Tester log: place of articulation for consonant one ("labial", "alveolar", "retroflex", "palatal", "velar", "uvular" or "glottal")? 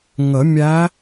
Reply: velar